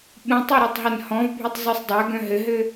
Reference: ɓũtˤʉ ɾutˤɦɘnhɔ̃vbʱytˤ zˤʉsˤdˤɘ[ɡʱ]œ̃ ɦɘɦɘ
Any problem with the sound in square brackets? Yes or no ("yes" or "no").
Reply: yes